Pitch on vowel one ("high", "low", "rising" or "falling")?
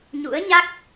rising